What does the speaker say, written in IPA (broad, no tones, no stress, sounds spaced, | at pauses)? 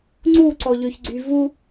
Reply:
ŋ͡ǀ u ǀ ɔ ʎ ø ç ɡ͡ǀ y v u